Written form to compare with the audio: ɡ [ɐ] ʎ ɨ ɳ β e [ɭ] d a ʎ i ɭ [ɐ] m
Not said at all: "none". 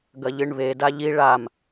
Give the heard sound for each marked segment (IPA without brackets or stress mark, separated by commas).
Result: ɐ, none, a